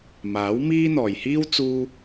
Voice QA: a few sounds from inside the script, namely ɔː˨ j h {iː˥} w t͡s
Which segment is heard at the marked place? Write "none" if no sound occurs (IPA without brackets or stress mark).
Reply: iː˥